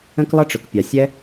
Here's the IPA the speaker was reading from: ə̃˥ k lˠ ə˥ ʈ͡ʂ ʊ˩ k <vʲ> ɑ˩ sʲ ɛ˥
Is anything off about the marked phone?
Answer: yes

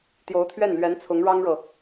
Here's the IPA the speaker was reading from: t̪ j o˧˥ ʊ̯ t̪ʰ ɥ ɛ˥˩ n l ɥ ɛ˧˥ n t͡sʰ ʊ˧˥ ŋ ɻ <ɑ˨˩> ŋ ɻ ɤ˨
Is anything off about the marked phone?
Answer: yes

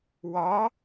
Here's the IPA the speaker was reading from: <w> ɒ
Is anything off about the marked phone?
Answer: no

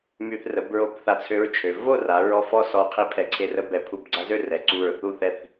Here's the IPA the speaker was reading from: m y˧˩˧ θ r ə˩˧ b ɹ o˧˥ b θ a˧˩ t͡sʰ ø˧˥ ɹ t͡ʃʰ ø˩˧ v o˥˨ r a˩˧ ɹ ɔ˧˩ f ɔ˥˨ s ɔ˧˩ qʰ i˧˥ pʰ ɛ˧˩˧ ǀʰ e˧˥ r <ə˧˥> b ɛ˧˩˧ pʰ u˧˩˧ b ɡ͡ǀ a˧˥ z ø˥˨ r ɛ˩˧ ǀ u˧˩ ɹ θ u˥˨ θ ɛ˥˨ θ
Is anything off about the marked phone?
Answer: no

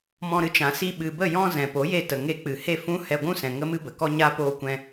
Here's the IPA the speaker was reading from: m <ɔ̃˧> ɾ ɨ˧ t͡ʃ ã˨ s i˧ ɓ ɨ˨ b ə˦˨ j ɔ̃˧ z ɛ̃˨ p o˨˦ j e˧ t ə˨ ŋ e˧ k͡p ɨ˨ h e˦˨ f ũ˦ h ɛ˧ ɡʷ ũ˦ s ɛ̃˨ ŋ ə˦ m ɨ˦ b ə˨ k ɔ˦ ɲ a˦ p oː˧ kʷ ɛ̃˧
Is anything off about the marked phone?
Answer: no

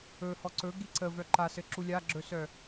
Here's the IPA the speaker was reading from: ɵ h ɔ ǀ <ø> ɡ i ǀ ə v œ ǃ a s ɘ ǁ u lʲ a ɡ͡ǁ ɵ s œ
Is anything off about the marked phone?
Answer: yes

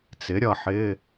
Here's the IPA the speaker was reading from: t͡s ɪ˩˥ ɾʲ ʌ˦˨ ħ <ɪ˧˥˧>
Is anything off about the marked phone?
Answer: no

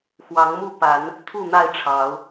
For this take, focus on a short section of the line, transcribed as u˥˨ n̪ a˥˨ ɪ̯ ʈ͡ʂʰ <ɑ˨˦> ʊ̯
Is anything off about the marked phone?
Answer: no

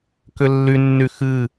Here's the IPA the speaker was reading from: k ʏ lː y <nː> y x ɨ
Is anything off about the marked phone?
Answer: no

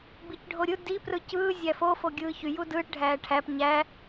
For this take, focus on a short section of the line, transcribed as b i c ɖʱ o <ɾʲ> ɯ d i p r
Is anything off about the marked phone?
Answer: no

